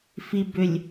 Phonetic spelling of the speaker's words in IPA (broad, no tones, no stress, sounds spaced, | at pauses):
f i b ʏ lʲ